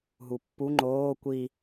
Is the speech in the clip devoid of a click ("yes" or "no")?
no